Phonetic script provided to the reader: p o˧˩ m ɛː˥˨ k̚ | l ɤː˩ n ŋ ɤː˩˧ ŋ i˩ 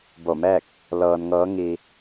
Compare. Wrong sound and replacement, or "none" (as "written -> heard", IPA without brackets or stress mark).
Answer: p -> b